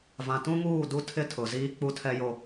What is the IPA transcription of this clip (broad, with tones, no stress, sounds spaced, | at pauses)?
v ã˨ t ũ˦ ŋ uː˦˨ d u˦ tʰ ɪ˦ tʰ ʊ˨ z iː˦ k͡p u˦ tʰ ɛ˦ j o˦